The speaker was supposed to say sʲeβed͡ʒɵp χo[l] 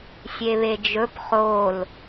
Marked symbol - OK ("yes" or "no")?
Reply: yes